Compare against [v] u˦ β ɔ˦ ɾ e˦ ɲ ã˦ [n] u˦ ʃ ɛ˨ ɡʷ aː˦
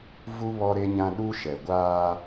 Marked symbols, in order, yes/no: yes, no

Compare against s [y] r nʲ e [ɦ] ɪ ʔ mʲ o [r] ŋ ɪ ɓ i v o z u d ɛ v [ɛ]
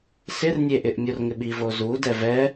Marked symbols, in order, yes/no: no, no, yes, yes

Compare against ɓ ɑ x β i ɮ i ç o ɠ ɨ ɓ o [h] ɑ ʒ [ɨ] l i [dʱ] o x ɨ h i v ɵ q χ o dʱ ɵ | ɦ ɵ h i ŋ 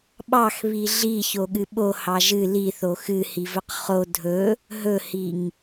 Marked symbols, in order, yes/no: yes, yes, no

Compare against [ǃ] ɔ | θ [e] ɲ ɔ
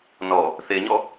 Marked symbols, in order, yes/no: no, yes

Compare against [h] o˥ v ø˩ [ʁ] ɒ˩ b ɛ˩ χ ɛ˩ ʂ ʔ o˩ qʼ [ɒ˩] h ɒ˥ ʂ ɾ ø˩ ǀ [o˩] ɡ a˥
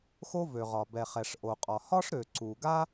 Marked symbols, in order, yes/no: no, yes, yes, no

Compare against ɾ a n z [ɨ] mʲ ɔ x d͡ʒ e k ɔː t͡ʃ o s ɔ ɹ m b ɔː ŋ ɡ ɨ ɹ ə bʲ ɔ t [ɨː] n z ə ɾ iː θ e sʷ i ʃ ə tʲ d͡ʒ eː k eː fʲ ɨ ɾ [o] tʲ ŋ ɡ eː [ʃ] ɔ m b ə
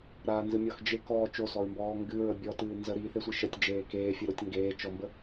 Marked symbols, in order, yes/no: yes, yes, yes, no

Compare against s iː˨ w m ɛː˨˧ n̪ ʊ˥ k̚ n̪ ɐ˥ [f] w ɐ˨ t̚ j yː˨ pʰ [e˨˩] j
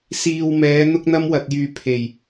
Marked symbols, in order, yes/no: no, yes

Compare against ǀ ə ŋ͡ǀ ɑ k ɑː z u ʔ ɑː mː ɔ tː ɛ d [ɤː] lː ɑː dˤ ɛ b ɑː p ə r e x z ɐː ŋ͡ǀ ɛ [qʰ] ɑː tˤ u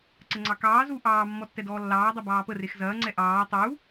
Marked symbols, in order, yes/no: no, no

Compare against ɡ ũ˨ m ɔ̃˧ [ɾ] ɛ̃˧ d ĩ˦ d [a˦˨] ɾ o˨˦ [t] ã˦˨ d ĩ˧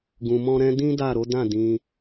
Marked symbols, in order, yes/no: yes, yes, no

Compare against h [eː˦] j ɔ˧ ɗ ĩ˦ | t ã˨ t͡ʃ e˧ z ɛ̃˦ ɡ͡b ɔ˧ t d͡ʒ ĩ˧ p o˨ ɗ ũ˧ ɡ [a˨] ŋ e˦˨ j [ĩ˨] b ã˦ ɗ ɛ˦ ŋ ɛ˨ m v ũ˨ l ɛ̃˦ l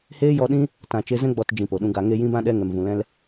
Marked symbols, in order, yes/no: yes, yes, no

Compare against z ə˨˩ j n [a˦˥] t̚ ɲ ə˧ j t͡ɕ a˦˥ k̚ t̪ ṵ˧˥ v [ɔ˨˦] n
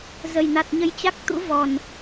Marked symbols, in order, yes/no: no, no

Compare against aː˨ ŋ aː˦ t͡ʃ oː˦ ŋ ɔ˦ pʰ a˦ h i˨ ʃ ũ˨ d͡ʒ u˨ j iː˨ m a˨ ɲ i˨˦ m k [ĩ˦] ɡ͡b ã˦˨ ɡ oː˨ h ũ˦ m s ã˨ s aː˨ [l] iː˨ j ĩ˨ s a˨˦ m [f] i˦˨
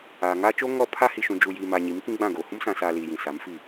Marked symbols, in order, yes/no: yes, yes, yes

